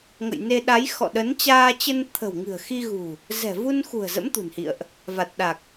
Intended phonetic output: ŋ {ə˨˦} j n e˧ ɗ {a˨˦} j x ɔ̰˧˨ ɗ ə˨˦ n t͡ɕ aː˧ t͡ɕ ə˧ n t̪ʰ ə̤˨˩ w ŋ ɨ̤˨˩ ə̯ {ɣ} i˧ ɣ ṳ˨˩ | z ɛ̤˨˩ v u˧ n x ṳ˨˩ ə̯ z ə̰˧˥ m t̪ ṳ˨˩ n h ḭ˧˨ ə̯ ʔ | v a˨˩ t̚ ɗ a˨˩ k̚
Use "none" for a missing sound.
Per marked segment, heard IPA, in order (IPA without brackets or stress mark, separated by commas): ə̰˧˨, a˨˦, x